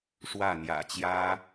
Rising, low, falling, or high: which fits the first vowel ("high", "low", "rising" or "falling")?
falling